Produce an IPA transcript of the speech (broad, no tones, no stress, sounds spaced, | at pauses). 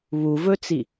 β u v ɵ t͡s i